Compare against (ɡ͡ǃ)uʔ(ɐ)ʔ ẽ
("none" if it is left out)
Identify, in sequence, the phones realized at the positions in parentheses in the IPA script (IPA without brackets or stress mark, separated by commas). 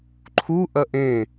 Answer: ǃʰ, ɐ